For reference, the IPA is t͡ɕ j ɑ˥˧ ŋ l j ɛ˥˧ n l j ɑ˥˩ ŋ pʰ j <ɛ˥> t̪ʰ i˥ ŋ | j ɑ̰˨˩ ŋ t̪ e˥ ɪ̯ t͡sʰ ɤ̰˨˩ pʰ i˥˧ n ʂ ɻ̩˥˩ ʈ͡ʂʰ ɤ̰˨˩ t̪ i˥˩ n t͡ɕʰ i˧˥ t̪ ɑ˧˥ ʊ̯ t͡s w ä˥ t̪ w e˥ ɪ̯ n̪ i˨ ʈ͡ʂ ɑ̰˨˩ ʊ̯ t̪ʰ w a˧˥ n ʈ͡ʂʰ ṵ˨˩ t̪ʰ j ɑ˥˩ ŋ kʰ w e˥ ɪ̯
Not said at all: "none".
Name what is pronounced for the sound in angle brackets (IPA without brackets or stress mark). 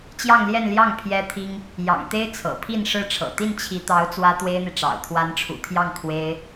ɛ˥